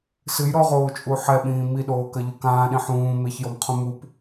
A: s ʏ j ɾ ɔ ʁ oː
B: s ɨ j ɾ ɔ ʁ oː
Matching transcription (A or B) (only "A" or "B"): B